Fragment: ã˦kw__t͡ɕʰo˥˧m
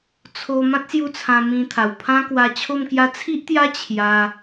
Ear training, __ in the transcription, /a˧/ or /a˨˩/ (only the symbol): a˧